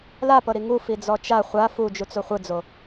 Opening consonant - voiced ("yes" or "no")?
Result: yes